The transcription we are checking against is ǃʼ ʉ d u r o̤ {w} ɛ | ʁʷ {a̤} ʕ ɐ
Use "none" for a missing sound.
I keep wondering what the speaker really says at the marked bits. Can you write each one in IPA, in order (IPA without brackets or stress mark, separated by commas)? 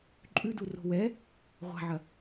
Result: w, a̤